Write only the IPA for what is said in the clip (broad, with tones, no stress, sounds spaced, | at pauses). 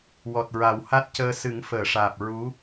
w ɔ˨˩ t̚ ɹ a˨˩˦ w h a˦˥ t̚ c əː˧ s ɨ˨˩˦ ŋ f əː˨˩˨ ʂ aː˨˩ p̚ ɹ u˧˥